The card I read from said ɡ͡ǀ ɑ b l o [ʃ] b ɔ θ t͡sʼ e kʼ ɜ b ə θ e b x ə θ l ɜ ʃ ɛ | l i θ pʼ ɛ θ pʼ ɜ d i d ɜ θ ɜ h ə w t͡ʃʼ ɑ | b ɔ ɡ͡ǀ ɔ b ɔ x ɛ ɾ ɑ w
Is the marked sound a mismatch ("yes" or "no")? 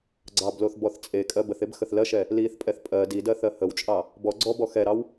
yes